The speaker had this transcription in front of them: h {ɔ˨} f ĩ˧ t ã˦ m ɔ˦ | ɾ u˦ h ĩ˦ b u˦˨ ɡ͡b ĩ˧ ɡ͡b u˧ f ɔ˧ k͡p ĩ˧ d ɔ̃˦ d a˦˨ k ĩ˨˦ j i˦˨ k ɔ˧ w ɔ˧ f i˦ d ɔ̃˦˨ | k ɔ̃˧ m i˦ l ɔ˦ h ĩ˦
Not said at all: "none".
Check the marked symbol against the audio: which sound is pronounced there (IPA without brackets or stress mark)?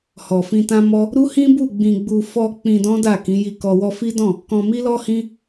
ɔ˨